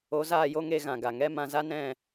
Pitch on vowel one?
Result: rising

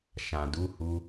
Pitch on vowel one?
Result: low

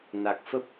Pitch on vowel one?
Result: low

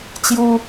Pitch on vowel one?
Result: high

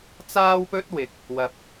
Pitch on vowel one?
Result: high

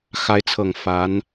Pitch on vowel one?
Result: rising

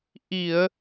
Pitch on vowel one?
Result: low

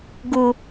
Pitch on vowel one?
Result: low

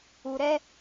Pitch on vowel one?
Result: low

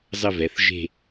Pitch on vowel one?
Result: falling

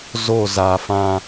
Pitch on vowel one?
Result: falling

